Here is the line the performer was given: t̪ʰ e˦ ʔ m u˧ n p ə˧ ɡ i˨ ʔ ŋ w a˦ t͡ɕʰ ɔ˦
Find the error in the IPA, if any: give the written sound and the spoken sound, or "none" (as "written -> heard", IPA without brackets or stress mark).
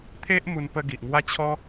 none